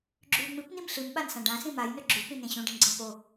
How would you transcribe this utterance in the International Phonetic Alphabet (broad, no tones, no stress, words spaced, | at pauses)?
ɡ͡ǁʉ ŋ͡mɨpnim ɬɨmɓansã ɖãsĩ majnɵ ɡ͡ǁʉpĩnẽ ɕũɖĩnɡ͡ǀẽ po